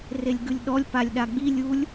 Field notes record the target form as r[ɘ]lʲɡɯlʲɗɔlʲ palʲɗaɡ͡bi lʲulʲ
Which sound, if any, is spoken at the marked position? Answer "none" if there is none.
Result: e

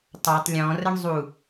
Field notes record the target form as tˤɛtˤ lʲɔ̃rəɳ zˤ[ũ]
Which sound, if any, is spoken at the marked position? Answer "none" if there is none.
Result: u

